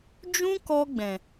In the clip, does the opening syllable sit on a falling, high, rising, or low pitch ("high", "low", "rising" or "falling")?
high